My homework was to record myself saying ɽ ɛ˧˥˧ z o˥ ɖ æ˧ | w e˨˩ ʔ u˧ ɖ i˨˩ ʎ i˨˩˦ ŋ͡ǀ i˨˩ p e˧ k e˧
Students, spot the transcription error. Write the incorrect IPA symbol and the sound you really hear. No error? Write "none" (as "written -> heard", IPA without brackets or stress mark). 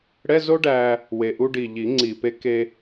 none